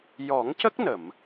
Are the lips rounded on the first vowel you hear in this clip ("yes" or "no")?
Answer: yes